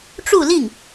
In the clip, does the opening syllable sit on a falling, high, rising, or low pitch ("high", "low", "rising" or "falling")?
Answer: falling